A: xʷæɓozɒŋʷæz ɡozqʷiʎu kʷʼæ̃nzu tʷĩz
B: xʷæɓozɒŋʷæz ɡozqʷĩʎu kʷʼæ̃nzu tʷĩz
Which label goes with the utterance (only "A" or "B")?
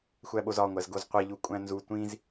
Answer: A